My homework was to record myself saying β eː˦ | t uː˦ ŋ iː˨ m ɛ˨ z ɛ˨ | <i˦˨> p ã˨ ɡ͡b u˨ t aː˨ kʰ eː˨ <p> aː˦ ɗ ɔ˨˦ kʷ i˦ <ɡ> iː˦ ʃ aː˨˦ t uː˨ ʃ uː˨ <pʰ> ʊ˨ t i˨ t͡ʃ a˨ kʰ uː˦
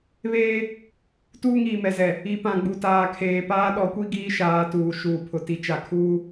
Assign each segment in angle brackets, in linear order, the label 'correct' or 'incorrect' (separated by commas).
incorrect, correct, correct, correct